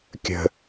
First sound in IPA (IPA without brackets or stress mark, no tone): kʲ